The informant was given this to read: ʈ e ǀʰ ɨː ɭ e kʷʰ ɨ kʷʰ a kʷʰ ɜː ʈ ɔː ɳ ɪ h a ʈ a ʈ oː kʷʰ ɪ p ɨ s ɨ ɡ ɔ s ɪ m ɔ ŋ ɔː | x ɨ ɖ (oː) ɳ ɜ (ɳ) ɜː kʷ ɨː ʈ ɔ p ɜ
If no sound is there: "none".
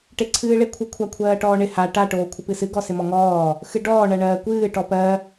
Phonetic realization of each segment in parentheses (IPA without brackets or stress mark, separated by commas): ɔː, ɳ